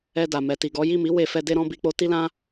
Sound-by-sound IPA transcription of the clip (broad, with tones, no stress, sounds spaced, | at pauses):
ɛ˧ d a˨ m ɛ˨ t i˨ ɡ ɔ˨˦ j i˦˨ m i˨˦ w e˦˨ f ɛ˧ d e˦ ɾ ɔ̃˦ b i˧ k͡p o˦ t i˦ l ã˦